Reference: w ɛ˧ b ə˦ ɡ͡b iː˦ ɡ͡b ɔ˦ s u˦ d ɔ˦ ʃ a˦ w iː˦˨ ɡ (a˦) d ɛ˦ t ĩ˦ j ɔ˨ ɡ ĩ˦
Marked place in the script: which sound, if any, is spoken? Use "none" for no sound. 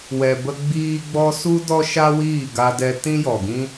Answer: a˦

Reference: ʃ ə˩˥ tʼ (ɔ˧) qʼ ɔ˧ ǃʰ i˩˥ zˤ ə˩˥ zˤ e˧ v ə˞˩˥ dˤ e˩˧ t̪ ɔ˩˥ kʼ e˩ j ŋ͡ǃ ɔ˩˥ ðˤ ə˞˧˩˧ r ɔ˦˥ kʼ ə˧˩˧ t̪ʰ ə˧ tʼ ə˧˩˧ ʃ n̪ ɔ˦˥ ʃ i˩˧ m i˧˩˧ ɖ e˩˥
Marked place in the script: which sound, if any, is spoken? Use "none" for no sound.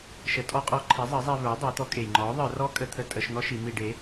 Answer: ɔ˧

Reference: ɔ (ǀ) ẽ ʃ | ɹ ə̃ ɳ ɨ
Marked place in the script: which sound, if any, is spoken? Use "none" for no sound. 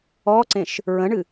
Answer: ǀ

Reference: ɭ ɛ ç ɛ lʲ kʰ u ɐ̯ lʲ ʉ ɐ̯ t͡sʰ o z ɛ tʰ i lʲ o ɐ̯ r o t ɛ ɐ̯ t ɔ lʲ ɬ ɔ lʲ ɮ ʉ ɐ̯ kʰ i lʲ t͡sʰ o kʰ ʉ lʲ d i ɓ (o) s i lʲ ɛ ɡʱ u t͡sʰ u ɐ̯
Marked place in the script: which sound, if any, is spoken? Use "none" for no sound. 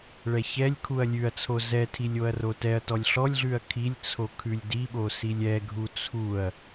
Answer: o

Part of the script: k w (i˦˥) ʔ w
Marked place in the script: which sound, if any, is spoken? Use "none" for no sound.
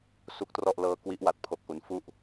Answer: i˦˥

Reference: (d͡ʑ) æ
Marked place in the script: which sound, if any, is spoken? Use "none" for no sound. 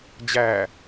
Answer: d͡ʑ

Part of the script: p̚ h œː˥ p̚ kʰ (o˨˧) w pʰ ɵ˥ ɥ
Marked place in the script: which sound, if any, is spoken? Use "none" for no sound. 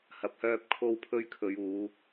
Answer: o˥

